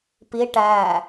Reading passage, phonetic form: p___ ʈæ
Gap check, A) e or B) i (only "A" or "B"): B